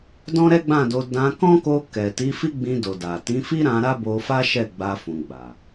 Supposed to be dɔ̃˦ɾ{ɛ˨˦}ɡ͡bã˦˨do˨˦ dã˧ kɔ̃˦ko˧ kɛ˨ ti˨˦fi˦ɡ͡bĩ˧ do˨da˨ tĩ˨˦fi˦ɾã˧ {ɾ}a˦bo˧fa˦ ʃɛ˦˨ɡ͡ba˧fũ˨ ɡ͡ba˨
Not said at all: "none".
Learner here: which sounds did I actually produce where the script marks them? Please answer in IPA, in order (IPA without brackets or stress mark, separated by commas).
ɛ˦, ɾ